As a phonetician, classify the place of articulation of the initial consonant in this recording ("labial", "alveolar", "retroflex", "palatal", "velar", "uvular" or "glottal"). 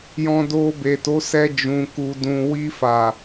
palatal